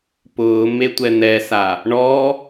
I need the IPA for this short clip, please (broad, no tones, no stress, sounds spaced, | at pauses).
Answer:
p ʊː m e tʷ ɛ n̪ ɛ s a | ɳ ɔ